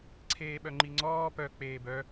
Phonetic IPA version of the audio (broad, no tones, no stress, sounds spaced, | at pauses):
ǀʰ eː ɓ œ ŋ͡ǃ i ŋ͡ǀ ɔː p œ k͡p eː b œ